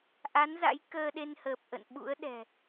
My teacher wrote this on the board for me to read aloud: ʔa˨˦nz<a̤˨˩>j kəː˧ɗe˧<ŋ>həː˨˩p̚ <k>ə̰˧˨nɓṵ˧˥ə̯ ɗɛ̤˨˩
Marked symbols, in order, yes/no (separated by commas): no, no, no